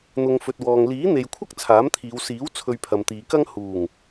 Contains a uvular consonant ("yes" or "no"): no